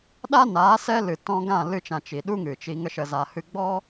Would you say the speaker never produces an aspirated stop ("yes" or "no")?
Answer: yes